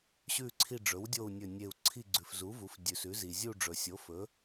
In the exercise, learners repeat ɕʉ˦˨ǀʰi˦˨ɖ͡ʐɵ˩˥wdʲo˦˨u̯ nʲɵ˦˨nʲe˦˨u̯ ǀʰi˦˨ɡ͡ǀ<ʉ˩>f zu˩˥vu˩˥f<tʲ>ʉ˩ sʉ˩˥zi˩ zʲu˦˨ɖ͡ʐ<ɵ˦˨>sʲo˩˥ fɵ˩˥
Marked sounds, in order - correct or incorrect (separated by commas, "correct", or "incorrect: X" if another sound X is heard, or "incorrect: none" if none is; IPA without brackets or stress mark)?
correct, incorrect: dʲ, incorrect: ɵ˩